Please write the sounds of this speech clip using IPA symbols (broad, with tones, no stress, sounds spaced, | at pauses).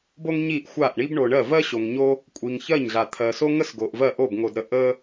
b o˥ ŋ ɲ i˥˩ ʔ xʷ a˥˩ ʔ ɳ i˥ b ɳ o˨ ɳ ɜ˥˩ v ɜ˥ ɕ o˨ ŋ ɲ o˥ | kʷʼ i˨ ŋ ç ɜ˥˩ ɲ ɮ a˨ t̪ʰ ɜ˨ s o˥ ŋ ə˥ s ɡ o˨ ʔ v ɜ˥˩ ʔ o˥˩ b ŋ o˨ d ɾ ə˨ ʔ ə˥